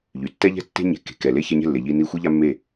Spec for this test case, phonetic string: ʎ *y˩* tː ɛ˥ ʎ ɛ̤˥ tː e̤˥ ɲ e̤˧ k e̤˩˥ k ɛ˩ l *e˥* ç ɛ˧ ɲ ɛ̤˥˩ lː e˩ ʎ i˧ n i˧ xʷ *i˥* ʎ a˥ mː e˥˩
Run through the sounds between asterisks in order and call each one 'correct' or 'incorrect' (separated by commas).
correct, correct, correct